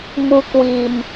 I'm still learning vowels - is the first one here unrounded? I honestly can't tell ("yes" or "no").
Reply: no